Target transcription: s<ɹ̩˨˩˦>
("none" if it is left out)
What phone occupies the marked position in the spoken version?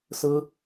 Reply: ɹ̩˥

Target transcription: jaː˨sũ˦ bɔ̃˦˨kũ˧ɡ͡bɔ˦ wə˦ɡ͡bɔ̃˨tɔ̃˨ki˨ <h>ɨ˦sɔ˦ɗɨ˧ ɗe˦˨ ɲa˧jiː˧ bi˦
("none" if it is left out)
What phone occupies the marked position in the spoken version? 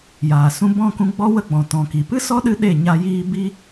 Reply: p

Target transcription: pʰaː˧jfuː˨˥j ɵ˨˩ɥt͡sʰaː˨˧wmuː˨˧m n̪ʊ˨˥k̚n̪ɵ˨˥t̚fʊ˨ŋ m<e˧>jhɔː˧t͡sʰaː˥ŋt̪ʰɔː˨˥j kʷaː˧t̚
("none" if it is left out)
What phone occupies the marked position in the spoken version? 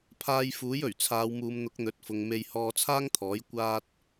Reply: e˧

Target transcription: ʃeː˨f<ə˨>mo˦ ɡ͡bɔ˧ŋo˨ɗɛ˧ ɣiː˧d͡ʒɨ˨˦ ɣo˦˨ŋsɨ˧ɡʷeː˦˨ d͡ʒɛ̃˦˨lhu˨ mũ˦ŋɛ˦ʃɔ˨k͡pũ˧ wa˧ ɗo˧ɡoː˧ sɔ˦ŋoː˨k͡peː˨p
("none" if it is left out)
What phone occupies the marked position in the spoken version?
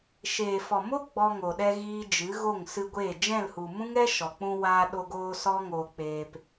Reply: ɔ˨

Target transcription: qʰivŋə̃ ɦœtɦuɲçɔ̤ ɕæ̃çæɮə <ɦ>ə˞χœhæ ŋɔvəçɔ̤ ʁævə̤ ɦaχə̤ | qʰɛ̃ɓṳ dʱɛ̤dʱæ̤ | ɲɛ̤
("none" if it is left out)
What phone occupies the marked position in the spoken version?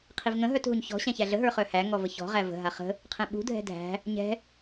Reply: ɦ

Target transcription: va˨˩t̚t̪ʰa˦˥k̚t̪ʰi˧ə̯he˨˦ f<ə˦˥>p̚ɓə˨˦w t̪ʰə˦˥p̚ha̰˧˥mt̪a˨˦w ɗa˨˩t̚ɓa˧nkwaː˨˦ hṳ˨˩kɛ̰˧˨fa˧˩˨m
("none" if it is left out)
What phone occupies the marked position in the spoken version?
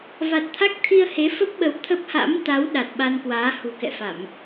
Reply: ə˦˥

